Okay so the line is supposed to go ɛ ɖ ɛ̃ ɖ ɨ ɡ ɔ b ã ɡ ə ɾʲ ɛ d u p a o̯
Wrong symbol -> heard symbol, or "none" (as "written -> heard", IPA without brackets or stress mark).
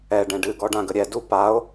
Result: b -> ɖ